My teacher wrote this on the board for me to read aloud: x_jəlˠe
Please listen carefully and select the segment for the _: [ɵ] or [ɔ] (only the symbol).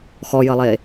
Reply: ɔ